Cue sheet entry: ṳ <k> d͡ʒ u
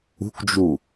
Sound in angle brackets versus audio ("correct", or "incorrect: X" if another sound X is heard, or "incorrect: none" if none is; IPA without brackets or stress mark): correct